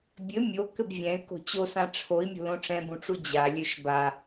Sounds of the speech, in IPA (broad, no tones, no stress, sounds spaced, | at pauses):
bʲ ɘ mʲ o k ɘ b vʲ ɛ̃ y̯ k o̤ t͡ɕ o s ã ʈ͡ʂʰ o i̯ mʲ o̤ l õ ʈ͡ʂ ɛ̃ b ũ ʈ͡ʂ u d͡ʑ a lʲ ø ʃ b a